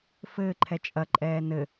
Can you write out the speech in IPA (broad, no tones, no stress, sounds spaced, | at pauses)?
f ɘː ǃʰ ɛ t͡ʃʼ ɐ ǃʼ ɛː n ɘ